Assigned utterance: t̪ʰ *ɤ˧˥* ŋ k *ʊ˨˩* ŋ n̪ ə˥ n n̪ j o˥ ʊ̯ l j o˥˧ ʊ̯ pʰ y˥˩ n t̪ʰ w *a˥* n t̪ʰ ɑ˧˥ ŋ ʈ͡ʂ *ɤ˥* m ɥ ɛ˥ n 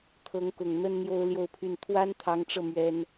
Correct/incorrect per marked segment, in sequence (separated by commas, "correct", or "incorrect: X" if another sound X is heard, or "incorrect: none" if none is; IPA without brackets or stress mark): correct, correct, correct, incorrect: ɤ˧